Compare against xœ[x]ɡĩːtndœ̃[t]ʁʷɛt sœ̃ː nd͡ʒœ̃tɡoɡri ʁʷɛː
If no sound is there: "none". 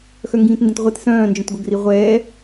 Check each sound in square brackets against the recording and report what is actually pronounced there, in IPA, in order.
ŋ, t

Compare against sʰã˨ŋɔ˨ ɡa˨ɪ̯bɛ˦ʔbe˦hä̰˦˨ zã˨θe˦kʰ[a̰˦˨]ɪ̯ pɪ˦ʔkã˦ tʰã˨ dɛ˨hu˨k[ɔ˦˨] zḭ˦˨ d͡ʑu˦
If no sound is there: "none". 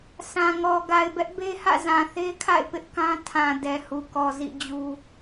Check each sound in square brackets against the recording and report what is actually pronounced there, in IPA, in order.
a̰˦˨, ɔ˨

